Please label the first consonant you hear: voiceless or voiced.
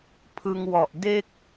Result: voiceless